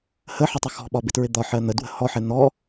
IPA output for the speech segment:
h ə ħ ɪ tˤ ʊ x ɔ̤ ɓ ɒ b ɪ t ɹ ɪ d̪ ɒ ħ ɜ n̪ ə d w ə̤ h ɔ ħ ɛ n̪ ɔ

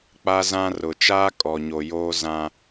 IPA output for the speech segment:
k͡p a˦ z ã˦ r ʊ˨ t͡ʃ aː˦ kʼ ɔ˨ ɲ o˨ j oː˦ z ã˦

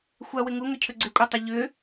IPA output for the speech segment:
xʷ a w ɪ ŋ u ŋ ʏ cʰ ʏ ɡ͡ǀ ɪ kʷʼ a tˤ ʏ ʎ ʏ

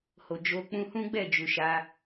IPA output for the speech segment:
h o˨ d͡ʒ o˧ k͡p ũ˦ h ũ˦ ɡ͡b ɛ˦˨ d͡ʒ u˨ ʃ a˧

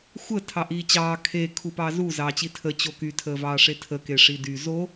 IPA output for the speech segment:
xʷ ə tʰ ɑ ʔ iː t͡ɕ ɑː kʰ e kʰ u p ɑ z u z ɑː t͡ɕ i tʰ ə t͡ɕ o k y tʰ əː v ɑː ʂ e tʰ ə k e ʂ i d y z o

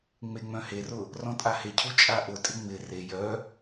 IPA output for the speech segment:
ŋ͡m e ŋ͡m œ̃ h e r ʊ | r ɔ̃ tʼ a h e cʰ u t͡ʃʼ a ʔ ʊ tʼ ɪ ŋ͡m ɪ r e j œ

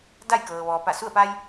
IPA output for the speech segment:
d a˥˨ j k ɤː˩ ʋ ɔː˩ p a˧˩ s u˥˨ ə̯ p a˧ j

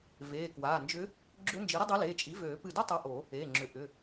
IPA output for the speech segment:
v eː˩˧˩ k w aː˩˧˩ n d͡ʒ ʏ˧˥ | ɡ͡ǁ ʏ˧˥ n d͡ʒ i˩˥ ɾ ə˥ dˤ e˧˥ l eː˩˧˩ t͡ʃʼ i˩˥ v øː˨˩˦ p ɨ˧˩ d o˥ tˤ a˧˥ ʔ o˨˩˦ | eː˩˧˩ ŋ͡ǁ ʏ˩˥ ʔ ʏ˩˧˩

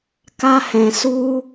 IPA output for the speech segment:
k a˦ h ɛ̃˧ s u˦

